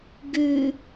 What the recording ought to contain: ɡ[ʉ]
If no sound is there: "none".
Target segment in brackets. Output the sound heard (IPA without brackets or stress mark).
ʉ